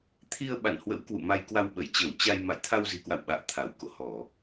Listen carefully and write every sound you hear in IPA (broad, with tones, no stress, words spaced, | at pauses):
t̪ʰi˧ə̯ɓa̰˧˨nhwə̰˧˥w kwṵ˧˨ma˧jkwa˧wɓə˧˩j t͡ɕəː˧˩wt͡ɕa˧j ma̰˧˨jt̪ʰa˧wzi̤˨˩kwa̰˧˨w ɓa̰ː˧˨t̪ʰa˧˩w ko̰˧˨hɔ˧˩˨